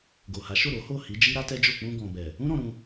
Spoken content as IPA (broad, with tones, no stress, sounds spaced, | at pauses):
ɡ o˨ h a˨˦ ʃ o˦˨ ɾ o˨˦ h o˦˨ h i˨˦ d͡ʒ i˦ ɾ a˦ t ɛ˦ d͡ʒ o˦˨ k͡p ũ˧ ɡ ɔ̃˨ b ɛ˨ | ũ˦ ɾ ɔ̃˧ ɾ ũ˧